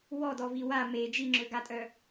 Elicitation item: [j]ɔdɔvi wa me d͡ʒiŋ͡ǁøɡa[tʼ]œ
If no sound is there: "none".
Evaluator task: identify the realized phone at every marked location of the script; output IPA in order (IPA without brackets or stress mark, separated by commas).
w, tʼ